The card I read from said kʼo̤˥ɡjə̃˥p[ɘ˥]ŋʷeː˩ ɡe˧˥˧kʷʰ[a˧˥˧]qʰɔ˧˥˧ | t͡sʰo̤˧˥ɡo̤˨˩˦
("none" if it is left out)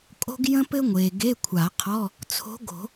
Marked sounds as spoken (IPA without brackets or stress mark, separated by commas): ɘ˥, a˨˩˦